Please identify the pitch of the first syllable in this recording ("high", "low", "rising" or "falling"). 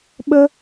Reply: high